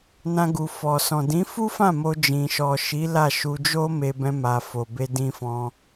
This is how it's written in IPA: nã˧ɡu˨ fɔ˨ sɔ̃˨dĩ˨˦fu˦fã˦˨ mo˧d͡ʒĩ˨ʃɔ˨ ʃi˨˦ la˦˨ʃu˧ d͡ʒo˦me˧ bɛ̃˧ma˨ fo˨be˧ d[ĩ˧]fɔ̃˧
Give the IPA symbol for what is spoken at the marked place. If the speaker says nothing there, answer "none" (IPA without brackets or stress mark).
ĩ˧